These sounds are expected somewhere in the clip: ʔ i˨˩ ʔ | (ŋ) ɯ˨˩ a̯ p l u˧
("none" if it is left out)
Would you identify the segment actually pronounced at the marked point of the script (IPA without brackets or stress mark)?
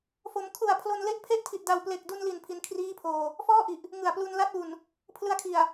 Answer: ŋ